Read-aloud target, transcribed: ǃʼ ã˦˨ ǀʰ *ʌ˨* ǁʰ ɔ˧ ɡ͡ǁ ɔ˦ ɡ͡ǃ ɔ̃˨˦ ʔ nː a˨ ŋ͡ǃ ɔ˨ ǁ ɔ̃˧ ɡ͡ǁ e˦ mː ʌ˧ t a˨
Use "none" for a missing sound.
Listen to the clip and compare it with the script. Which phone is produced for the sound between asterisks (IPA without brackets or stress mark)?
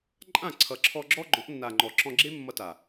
ʌ˨